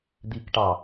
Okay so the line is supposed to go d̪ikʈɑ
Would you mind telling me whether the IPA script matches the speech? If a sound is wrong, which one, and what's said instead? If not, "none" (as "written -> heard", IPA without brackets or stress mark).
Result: none